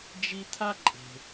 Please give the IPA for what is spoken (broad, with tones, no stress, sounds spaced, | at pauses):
d͡ʒ i˦ t̪ʰ a˥ ǃʼ e̤˨